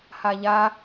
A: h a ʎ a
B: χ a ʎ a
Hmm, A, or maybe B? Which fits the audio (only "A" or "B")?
A